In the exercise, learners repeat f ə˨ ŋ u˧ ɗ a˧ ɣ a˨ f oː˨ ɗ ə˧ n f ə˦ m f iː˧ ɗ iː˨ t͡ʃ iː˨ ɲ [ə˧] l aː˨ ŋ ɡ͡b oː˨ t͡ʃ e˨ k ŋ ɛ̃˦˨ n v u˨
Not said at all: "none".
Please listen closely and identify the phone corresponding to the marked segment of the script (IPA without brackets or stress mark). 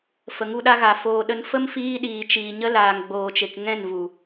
ə˧